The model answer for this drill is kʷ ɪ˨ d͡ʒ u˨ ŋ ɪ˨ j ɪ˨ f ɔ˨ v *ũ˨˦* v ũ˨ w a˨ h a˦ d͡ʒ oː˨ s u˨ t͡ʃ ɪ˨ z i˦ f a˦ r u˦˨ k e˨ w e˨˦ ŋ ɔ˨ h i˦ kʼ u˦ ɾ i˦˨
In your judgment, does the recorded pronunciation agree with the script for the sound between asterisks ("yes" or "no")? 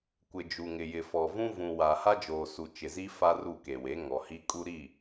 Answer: no